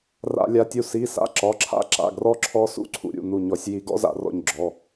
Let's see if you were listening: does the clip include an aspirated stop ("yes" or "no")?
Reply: yes